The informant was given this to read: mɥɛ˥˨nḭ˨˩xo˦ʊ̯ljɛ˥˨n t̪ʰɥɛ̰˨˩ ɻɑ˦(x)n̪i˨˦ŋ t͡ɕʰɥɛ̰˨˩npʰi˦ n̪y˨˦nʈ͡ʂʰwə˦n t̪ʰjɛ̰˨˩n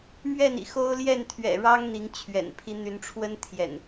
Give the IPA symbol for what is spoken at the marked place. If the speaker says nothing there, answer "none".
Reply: ŋ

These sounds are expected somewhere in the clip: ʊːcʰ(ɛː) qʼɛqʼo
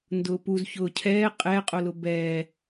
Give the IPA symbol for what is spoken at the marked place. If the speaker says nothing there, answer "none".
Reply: ɛː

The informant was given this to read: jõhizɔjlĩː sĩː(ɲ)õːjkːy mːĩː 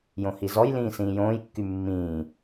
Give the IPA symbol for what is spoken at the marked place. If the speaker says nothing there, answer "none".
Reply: j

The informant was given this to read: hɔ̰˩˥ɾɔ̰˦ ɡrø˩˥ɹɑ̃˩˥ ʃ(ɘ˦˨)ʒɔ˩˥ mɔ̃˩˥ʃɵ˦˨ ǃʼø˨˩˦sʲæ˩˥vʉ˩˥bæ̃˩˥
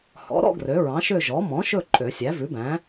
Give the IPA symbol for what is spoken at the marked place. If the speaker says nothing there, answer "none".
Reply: ø˦˨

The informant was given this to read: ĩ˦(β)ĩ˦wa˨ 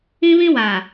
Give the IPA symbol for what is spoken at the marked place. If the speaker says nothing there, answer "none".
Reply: β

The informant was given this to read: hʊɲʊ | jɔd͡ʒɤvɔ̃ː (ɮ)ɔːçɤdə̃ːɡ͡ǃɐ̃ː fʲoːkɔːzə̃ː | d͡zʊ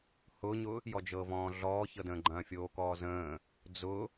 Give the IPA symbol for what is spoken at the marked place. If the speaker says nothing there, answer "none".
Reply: ɮ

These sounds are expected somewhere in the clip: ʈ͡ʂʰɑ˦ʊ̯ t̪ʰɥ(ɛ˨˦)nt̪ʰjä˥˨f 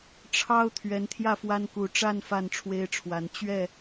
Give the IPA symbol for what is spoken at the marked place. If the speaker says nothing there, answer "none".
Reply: ɛ˨˦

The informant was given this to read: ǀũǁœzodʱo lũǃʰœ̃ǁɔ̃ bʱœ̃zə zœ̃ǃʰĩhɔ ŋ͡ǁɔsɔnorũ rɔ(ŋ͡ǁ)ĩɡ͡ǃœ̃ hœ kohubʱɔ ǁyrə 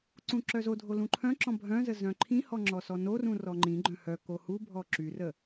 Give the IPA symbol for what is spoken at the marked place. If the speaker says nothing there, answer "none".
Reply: ŋ͡ǃ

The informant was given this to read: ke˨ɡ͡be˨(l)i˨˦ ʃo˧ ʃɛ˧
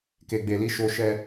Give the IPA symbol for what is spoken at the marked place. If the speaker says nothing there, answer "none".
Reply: l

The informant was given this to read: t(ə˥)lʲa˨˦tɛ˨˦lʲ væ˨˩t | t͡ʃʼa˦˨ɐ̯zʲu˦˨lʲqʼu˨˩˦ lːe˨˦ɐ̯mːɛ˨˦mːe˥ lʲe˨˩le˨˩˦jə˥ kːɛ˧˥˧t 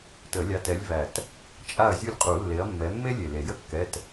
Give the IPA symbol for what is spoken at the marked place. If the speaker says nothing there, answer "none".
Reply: ə˨˩˦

